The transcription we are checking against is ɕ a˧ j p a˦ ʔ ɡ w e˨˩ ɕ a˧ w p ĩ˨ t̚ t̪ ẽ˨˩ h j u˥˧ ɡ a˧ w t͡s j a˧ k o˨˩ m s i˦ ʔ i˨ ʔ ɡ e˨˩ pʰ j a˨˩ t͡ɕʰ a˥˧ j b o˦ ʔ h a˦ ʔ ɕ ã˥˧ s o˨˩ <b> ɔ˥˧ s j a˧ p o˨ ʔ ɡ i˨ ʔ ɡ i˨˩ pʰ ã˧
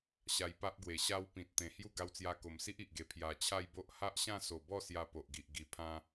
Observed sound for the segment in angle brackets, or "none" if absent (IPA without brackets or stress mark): b